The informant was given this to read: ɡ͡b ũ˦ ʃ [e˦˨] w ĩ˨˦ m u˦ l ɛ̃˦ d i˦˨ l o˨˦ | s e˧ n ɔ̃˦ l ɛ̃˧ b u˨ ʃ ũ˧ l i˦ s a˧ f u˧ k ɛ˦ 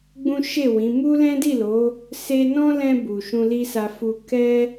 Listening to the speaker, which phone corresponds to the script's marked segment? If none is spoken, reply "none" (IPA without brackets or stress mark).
e˦˨